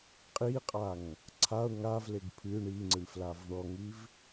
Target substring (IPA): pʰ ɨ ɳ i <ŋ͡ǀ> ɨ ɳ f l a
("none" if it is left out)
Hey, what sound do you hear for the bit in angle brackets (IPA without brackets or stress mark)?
ŋ͡ǀ